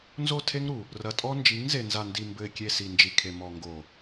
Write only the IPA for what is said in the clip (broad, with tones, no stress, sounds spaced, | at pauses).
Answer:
n z o˦˨ tʰ e˦ ŋ ɾ u˨ | r ɐ˨ tʼ ɔ˦ n d͡ʒ i˨˦ ŋ z e˨ n z a˨ n d i˨ m b ɘ˨ ɪ̯ kʲ e˨ s i˨ n d͡ʒ i˨ kʰ e˨ m ɔ˨ ŋ ɡ o˨